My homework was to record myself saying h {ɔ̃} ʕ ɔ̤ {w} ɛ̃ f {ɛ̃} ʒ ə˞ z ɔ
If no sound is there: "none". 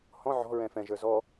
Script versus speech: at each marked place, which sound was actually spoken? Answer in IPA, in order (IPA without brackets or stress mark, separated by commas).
ɔ̃, ɹ, ɛ̃